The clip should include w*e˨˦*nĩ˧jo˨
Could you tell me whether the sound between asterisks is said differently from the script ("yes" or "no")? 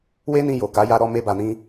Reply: yes